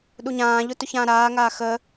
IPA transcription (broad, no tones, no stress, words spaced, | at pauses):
ɗuɲãːʎʊ tʊçãːɾaːŋaː xə